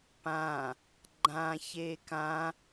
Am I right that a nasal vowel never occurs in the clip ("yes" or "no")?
no